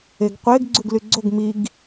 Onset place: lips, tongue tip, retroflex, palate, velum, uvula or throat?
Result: velum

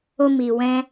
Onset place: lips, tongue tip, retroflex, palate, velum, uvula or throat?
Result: lips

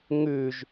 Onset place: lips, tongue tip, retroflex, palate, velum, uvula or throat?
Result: velum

